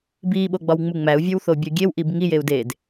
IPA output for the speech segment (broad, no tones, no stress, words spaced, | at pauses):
biːɓoɡ͡bɒwŋ͡mu ŋ͡mæu̯vʲowθobʲɒ ɡʲewʔib ŋijeu̯ deːd